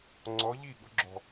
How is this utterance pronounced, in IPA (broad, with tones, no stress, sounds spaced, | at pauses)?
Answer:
ŋ͡ǀ ɔ˨˥ ʎ i˥˩ ɠ ʊ˨˥ ɡ͡ǁ ɔ̤˨˩